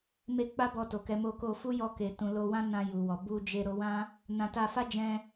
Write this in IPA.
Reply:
m e˧ k͡p a˦ b ɔ˧ t o˨ k ɛ˨˦ m o˧ k o˧ f u˦ j ɔ˧ k e˨ t ũ˨ l o˨ w ã˧ n ã˨ j u˨ w ɔ˨ b u˨ d͡ʒ e˨ ɾ o˨˦ w ã˦ | n ã˧ t a˧ f a˦ d͡ʒ ɛ̃˧

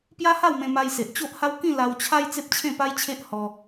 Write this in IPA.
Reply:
p j a˦ h a˥˧ w m ẽ˧ m a˧ j s e˨ ʔ t͡ɕ o˦ ʔ h a˦ w k ĩ˥˧ l a˧ w t͡ɕʰ a˦ j t͡s e˦ p̚ t͡ɕʰ ẽ˥˧ p a˦ j t͡ɕʰ e˦ ʔ h ɔ˧

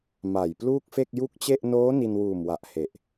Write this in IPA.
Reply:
m a˨˩ j p l uː˥˩ k̚ f e˥˩ k̚ j u˥˩ k̚ t͡ɕ e˥˩ ʔ n oː˦˥ n i˧ n w uː˨˩ m w a˨˩ ʔ h e˨˩ ʔ

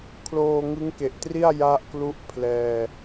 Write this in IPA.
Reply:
kʰ l oː˧ ŋ ɯ˦˥ ŋ k e˨˩ ʔ t r i˥˩ a̯ j a˥˩ ʔ k l u˥˩ ʔ pʰ l ɛː˧

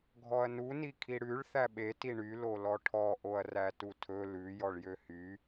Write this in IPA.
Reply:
ɡʱ ɔ ɐ̯ n u n i kʰ i ɽ ʉ ɭ θ æ ɓ e t i ɳ y l o l ɔ ʈʰ ɔ ʔ o ɐ̯ r æ t u tʰ ɵ l ʉ j ɔ ɭ j ø h y

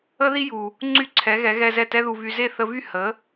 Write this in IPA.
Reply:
ə˥ ð i˥ j u˩ | ŋ͡ǀ y˥˩ ǀʰ ɛ˩˥ ɣ ɛ˩˥ ɣ ɛ˧ z ɛ˥˩ t ɛ˥ ð u˧ v y˧ z e˥˩ θ ə˧ v y˥˩ h ə˩˥

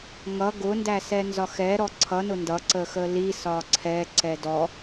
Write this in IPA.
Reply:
ŋ ʌ ɡ ʊ n d æ s ɛ n z ɒ x ɛ ɾ ɔ ǀʰ ʌ n ʊ n d ʌ ǀ ə x ə l i s ɒ ǀʰ ɛ ǀ ɛ d ɔ

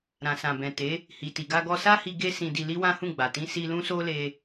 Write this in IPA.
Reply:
ɾ ã˨ s ã˨ b ɛ̃˨ t e˨˦ | h i˨ t i˨ ɡ a˧ ɡ ɔ˧ s a˦ h i˧ ɡ e˦ s ĩ˧ d i˧ l i˦ w ã˦ h ũ˦˨ ɡ͡b a˨ t ĩ˧ s i˧ l ũ˦ s o˦ l e˧

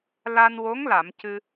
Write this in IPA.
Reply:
l a˧ n w o˧˥ ŋ l a˨˩˨ m c ɨ˧

